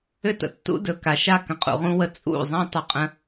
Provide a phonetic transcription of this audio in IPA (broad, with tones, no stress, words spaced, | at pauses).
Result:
ʏ˦tə̰˨tːṵ˦ dɵ˨ ka˨ʃa˦˨ kə̃˨qʼṵ˨ʁũ˧wə˧ t͡sʼṵ˦˨ zˤã˦ tˤʏ˧qʼə̃˦